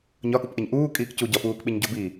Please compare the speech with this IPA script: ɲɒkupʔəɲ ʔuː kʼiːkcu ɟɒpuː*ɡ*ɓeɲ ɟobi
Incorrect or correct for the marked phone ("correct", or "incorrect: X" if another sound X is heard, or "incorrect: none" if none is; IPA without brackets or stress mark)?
incorrect: k